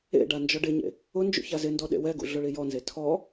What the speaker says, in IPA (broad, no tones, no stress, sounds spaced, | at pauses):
ḛ ɖ a n d͡ʒ ɔ ɖ ɪ ɲ ḛ | ʊ n d͡ʒ ṵ ç a z ɪ n d ɔ ɗ ḛ w ɛ ɡ ṵ ɮ ʊ ɭ i j ɔ n z e tʰ ɔ